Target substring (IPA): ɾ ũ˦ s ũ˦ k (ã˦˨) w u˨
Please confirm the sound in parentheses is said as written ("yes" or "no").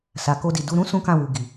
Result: yes